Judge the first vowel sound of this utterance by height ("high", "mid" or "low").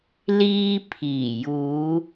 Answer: high